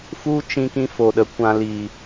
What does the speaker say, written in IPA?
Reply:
f u˦ t͡ʃ ĩ˧ k ĩ˦ f o˨ ɗ ə˨ kʷ ã˧ l i˨

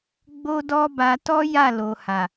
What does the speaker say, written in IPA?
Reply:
ɡ͡b o˦ d ɔ˦ b a˧ t ɔ˦ j a˦˨ l o˨ h a˨

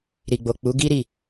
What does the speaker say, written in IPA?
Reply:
ɾ i˨ ɡ͡b o˨ k͡p u˨˦ ɡ i˦ ɾ i˦˨

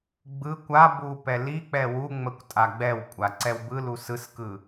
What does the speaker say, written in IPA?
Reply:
ɡ͡b ɯ kʷ a b u p ɛ l i k͡p ɛ w u ŋ͡m ə kʷ tʼ a ɡ͡b ɛ w kʷʼ a ǀ ɛ w b ɯ l u s ɯ s k ɯ

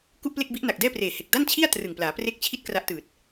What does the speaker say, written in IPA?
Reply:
k u˥˩ ʔ p l e˥˩ k̚ b i˦˥ ʔ n a˨˩ k̚ d ɛː˥˩ p r eː˨˩ h e˨˩ k̚ d a˥˩ n t͡ɕʰ i˥˩ a̯ t r ɯ˨˩ ŋ p l aː˩˦ p r e˥˩ k̚ t͡ɕʰ i˥˩ t̚ k r a˦˥ ʔ t ɯː˨˩ t̚

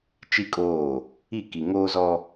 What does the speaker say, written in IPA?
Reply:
t͡ʃ i˦ kʼ oː˦˨ | i˦˨ k i˨ ŋ oː˦ z ɔ˦

